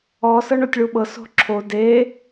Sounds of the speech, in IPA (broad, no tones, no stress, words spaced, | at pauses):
ɔ sɤɳotʲɭuɓɤs o̤ǁʰo de